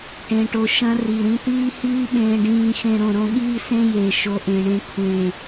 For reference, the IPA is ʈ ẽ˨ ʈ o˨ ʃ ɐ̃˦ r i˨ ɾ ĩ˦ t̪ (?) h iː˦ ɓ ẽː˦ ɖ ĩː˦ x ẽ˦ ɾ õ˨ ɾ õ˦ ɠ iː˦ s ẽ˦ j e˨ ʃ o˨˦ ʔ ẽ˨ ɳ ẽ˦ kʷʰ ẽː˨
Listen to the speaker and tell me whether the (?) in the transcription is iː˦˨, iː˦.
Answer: iː˦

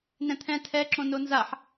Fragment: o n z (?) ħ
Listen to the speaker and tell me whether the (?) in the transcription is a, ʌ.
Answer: a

